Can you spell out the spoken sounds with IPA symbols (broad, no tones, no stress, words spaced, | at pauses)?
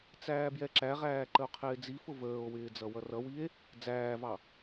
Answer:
t͡sæːbjɛǁæʁæː ǃəo̯qʰɪːd͡zifʊ vəːo̯wɪː d͡zʌwʌrʌwie̯ | d͡zæːvɑ